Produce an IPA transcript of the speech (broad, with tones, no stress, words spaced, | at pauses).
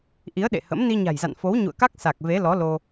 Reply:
ʔi˨˦ə̯ɗḛ˧˨hə̰˧˥m ni˧ɲa̤˨˩jza̰˧˨n fo˨˦w ɲṵ˧˨ə̯ka˦˥k̚ sa˨˩k̚ve˨˦ lɔ˨˦lo˧